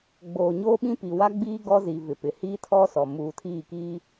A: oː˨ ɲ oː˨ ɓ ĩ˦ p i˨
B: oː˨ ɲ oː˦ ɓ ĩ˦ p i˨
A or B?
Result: B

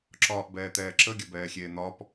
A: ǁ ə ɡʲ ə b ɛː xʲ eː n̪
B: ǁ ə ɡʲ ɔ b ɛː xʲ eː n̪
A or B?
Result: A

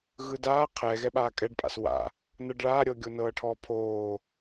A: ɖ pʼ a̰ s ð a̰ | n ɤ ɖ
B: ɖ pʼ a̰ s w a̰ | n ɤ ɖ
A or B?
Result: B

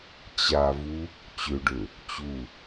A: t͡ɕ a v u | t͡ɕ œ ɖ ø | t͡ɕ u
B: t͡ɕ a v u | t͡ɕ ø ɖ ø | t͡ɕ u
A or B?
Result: B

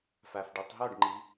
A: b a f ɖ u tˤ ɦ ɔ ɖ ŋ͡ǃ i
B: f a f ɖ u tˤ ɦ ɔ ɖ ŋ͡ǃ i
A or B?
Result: B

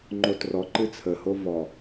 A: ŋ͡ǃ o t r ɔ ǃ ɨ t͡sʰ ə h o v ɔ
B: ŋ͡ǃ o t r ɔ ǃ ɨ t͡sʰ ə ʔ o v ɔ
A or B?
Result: A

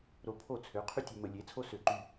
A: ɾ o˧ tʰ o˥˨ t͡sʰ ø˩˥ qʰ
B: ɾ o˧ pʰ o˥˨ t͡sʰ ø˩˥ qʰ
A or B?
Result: B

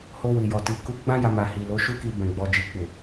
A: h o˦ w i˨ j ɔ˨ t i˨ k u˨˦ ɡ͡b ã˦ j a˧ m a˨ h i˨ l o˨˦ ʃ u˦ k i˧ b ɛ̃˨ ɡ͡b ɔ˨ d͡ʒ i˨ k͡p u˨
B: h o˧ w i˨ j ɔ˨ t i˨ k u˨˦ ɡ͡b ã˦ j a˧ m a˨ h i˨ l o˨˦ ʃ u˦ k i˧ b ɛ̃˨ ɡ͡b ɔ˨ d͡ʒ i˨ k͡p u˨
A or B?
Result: B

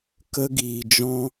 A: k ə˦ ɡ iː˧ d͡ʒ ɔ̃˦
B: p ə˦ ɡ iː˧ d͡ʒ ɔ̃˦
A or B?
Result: A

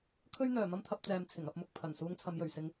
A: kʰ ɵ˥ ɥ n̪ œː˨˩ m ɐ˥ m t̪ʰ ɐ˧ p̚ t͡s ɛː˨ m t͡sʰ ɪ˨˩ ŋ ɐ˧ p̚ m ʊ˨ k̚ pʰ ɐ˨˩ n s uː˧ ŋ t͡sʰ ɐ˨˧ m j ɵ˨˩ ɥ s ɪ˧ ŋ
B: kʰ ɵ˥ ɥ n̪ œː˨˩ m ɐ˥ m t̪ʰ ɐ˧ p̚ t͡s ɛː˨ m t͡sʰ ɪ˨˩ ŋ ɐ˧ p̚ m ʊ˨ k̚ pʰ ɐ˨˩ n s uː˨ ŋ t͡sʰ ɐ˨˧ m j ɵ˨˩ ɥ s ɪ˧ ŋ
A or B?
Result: A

